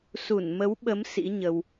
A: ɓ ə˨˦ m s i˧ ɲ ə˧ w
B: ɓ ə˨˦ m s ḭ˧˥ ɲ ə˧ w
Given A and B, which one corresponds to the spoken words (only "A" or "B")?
B